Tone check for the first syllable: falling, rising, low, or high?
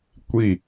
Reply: falling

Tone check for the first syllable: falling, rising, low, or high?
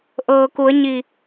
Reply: low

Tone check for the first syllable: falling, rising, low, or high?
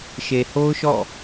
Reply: low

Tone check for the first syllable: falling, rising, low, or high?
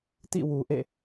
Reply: falling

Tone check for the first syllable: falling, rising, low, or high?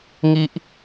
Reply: high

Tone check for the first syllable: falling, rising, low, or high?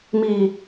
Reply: low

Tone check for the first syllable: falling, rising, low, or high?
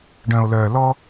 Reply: low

